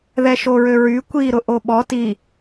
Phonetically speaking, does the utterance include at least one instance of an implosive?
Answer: yes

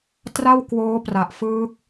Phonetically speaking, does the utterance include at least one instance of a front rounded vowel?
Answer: no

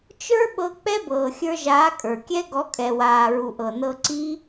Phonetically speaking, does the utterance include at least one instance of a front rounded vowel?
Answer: no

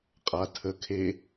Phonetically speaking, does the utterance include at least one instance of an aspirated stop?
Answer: yes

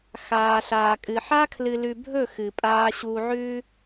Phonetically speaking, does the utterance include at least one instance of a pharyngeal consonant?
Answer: yes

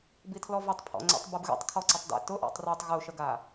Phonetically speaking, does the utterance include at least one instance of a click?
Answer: yes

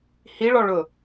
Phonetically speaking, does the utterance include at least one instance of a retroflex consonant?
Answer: yes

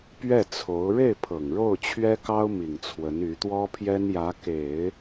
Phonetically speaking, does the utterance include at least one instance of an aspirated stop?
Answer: yes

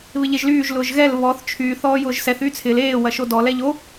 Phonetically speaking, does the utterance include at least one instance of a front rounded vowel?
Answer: yes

